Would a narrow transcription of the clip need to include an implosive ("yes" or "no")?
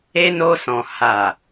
no